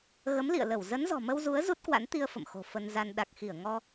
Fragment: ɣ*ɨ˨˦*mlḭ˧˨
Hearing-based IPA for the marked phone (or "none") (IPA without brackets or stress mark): ə˨˦